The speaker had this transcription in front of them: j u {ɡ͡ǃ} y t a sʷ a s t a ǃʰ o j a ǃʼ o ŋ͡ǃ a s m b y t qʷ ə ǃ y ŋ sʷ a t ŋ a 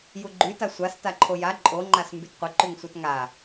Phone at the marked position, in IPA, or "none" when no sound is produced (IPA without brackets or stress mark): ɡ͡ǃ